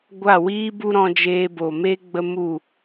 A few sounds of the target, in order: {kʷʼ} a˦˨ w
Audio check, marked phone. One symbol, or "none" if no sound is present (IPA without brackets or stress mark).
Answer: ɡʷ